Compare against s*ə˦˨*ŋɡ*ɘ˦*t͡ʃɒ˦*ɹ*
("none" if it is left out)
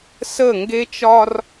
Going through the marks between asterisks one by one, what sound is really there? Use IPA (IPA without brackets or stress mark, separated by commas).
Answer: ə˦˨, e˦, r